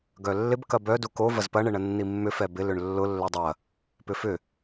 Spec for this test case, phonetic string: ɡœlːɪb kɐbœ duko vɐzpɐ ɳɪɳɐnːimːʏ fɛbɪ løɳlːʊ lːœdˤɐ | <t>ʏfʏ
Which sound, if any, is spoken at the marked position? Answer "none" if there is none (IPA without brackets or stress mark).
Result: p